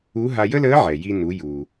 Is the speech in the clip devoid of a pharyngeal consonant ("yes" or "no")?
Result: no